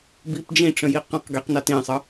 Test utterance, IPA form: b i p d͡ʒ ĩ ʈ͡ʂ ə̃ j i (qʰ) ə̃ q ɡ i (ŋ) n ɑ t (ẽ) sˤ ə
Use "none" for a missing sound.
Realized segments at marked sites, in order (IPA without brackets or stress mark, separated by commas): q, q, ĩ